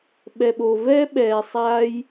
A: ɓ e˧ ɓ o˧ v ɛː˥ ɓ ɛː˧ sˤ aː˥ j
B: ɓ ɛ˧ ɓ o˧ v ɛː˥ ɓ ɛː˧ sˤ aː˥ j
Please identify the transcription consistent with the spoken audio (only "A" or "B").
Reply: B